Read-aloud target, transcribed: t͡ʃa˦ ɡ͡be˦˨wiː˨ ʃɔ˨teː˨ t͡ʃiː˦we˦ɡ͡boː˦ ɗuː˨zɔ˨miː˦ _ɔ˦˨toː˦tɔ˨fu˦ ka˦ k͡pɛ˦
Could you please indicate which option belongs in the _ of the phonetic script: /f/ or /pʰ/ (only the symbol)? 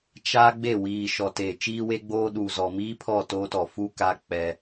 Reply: pʰ